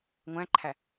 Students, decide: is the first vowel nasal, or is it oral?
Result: nasal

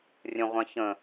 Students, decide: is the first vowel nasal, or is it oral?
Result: nasal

